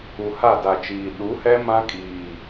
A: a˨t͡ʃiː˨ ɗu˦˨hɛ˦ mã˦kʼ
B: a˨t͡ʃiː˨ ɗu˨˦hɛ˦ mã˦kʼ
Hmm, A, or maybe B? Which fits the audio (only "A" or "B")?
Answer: B